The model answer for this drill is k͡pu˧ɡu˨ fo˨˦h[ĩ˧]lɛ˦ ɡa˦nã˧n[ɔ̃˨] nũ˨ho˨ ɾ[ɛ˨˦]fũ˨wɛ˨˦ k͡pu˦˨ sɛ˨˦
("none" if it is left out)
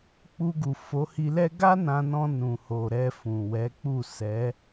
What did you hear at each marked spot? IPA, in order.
i˧, ɔ̃˧, ɛ˧

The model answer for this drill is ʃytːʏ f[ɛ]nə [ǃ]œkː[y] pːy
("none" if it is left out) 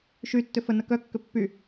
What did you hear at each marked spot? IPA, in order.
ə, k, ʏ

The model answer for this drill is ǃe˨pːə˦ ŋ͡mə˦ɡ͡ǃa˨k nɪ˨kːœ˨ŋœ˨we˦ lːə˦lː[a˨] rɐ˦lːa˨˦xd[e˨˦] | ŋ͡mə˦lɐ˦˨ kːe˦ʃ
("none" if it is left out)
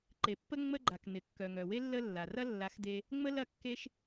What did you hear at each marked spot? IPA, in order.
a˨, e˧

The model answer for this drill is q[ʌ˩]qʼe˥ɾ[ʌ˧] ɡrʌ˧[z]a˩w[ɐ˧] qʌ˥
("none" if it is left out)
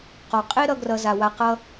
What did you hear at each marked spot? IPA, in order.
ɔ˩, ʌ˧, z, a˧

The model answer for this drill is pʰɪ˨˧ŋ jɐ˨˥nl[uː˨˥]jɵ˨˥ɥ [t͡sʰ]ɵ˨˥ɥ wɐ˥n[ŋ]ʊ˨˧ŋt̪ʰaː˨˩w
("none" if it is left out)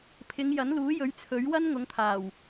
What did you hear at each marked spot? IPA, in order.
uː˨˥, t͡sʰ, ŋ

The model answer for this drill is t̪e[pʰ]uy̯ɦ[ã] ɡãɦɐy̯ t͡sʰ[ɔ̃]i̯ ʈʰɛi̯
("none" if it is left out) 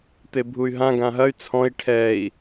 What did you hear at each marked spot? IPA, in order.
bʱ, ã, ɔ̃

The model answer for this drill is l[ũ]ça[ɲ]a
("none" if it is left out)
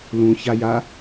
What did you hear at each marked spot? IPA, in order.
ũ, j

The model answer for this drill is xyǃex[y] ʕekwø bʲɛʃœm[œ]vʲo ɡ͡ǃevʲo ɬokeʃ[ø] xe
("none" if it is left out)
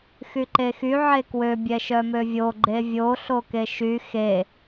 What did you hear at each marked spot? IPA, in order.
y, ø, y

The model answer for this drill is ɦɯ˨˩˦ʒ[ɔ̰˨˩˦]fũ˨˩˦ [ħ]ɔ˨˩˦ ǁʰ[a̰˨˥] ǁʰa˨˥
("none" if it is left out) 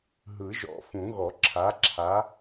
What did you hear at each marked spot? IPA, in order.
ɔ̰˨˩˦, ɣ, a˨˥

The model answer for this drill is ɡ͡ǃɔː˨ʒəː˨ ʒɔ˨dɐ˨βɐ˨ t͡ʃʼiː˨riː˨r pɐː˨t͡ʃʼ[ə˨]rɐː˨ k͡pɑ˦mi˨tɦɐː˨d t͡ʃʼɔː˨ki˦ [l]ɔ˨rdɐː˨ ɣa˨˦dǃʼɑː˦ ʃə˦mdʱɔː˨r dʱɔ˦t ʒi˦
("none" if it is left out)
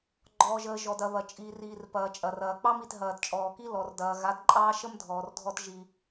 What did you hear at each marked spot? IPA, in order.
ɐ˨, l

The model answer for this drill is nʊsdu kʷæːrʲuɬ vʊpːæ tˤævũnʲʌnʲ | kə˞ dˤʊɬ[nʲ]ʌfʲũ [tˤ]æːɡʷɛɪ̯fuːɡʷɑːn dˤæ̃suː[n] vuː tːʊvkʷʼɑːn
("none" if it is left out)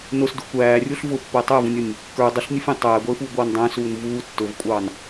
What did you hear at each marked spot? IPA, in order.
nʲ, tˤ, n

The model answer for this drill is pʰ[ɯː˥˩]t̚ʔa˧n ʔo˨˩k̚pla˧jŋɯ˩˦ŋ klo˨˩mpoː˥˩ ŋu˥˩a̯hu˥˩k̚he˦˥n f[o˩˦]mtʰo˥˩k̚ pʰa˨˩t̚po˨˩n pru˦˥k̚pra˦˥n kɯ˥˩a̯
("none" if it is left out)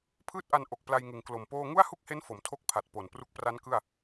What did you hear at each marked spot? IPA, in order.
ɯː˥˩, o˩˦

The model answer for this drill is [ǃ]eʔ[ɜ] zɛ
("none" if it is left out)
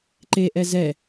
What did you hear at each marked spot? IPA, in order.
ǃ, ɛ

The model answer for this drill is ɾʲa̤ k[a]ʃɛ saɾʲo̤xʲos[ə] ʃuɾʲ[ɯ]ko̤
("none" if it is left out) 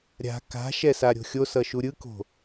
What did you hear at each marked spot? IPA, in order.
a̤, ʌ, ɯ

